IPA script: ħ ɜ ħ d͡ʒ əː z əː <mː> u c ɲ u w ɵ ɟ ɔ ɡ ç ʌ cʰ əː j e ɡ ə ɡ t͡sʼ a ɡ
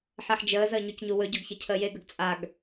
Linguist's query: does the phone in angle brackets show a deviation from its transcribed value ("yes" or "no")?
yes